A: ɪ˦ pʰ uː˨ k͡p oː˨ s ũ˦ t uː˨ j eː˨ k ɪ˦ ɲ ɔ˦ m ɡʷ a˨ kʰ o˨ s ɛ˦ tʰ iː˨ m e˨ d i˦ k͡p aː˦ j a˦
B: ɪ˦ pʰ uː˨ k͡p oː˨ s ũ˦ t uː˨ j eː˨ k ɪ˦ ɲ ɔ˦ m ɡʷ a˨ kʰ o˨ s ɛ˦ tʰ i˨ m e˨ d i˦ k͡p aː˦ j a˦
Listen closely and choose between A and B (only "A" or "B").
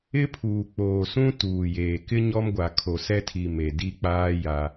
B